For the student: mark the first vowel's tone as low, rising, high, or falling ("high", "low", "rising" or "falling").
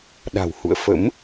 low